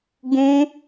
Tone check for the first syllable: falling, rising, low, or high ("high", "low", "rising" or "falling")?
high